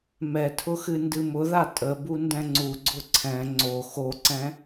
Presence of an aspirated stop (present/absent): present